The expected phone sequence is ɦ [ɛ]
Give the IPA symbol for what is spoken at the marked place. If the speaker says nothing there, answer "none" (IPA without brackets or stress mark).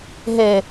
e